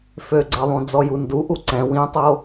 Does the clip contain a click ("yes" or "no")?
yes